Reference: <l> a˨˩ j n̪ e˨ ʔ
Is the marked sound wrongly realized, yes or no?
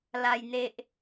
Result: no